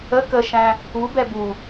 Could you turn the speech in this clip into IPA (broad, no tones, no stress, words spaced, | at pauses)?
ə kəʃæ̃ | ubɛ bu